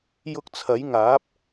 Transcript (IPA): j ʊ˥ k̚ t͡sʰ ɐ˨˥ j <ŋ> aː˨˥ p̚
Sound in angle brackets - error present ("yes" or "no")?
no